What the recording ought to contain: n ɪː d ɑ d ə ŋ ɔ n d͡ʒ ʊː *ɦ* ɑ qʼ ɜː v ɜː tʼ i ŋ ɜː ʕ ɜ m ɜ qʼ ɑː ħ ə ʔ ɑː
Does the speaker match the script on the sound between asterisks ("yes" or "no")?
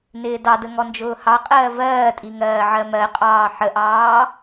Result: no